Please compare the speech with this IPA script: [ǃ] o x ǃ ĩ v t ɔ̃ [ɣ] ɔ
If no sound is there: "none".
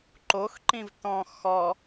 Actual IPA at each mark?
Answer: ǃ, x

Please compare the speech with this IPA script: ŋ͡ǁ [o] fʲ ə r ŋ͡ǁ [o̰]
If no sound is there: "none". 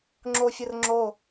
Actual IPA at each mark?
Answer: o, o

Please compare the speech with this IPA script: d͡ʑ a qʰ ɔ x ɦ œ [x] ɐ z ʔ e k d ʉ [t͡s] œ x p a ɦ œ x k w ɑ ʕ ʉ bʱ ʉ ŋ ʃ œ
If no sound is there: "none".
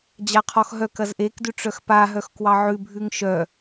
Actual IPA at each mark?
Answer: k, ʈ͡ʂ

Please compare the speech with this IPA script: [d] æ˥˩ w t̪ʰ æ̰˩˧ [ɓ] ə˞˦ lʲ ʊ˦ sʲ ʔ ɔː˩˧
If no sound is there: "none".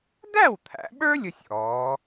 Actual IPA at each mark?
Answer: d, ɓ

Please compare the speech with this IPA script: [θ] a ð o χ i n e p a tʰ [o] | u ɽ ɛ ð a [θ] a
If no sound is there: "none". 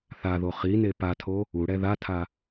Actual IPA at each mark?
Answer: θ, o, tʰ

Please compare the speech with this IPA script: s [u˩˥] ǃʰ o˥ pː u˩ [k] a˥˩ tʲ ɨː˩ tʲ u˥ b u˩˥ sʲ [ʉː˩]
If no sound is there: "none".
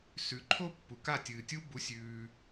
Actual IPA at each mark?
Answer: ʉ˩˥, k, ʉː˩

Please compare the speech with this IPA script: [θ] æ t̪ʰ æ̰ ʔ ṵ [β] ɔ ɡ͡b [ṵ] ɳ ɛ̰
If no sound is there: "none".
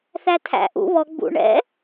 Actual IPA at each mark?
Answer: θ, β, ṵ

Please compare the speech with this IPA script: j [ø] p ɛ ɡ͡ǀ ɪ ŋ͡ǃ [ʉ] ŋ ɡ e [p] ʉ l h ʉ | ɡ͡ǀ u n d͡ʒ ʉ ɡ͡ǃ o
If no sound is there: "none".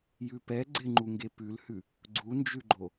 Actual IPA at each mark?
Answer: ʉ, u, p

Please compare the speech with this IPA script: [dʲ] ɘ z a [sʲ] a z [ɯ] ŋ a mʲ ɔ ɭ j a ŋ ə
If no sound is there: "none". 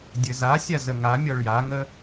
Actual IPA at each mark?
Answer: dʲ, sʲ, ə

